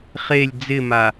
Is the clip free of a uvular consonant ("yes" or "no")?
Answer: no